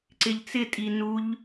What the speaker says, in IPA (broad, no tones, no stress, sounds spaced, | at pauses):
ǀ ɪ ʎ t͡s ɪ tʼ i n u ʎ